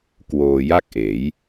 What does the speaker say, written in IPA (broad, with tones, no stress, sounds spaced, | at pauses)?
k w oː˧ j a˥˩ k̚ ʔ eː˩˦ j